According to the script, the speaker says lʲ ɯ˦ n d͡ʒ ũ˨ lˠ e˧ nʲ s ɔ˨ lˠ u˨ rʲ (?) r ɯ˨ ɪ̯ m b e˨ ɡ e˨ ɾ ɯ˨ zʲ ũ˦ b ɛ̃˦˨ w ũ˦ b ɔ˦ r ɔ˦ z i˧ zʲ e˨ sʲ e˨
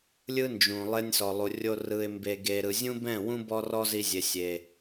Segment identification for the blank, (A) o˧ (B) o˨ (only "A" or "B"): A